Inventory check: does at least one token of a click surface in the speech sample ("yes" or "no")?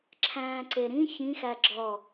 yes